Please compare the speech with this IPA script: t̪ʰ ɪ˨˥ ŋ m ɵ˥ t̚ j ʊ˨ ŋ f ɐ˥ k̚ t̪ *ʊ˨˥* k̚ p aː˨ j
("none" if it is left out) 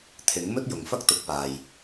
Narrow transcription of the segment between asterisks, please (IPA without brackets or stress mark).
ʊ˨˥